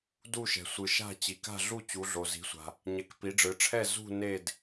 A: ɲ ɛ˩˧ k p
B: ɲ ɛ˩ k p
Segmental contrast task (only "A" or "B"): A